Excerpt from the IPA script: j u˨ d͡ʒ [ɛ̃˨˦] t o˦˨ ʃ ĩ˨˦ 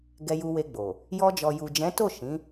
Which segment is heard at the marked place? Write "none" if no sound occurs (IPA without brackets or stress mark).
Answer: ɛ̃˨˦